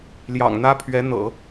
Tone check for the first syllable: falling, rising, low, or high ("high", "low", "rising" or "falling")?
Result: low